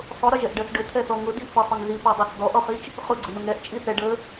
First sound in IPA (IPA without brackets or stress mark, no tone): sˤ